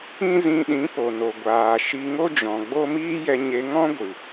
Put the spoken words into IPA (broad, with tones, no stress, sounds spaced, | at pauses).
ĩ˦ z ĩ˧ ɗ ĩ˨˦ p o˨ n o˨ ɡʷ aː˨ ʃ i˧ ŋ o˦ d͡ʒ ɔ̃˨ ɡ͡b o˦ m iː˦ j ɛ˧ ɲ e˧ ŋ ɔ̃˦ ɡʷ ɨ˨